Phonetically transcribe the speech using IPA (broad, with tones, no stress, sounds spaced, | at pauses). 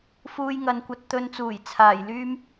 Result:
f uː˧ j ŋ ɐ˨ n kʷ ɐ˧ t̚ t̪ ɵ˧ n t͡s uː˨˩ j t͡sʰ aː˨˩ j l yː˥ m